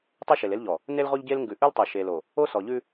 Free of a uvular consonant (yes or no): no